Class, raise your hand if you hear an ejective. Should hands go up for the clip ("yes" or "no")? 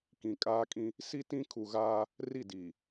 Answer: yes